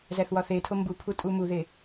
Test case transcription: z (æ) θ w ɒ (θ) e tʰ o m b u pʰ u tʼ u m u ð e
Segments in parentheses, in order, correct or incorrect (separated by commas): correct, correct